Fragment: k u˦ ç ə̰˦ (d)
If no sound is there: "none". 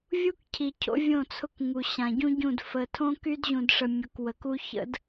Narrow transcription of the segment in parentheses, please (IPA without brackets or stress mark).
d